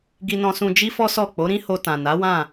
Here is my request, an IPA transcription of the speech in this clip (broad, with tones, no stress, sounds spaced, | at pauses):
ɡ i˧ n ɔ̃˧ s ũ˧ d͡ʒ i˦ f ɔ˦ s ɔ˦˨ k͡p o˨˦ ɾ ĩ˦ h o˧ t ã˨ n a˨˦ w ã˦˨